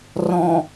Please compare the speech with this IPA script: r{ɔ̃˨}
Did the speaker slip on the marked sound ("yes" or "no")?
no